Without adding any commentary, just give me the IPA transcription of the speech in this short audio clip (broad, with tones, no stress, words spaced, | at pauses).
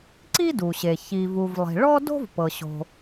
ǀi˥du˩ɕe˩ çi˩vu˩vlˠi̤˩ ɭɔ˥do̤˥vpɤ˩ɕo̤˩